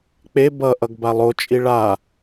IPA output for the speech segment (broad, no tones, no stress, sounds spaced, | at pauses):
k͡p e b ʌ ʔ ʌ ɡ b a lˠ o t͡ʃʼ i ɭ a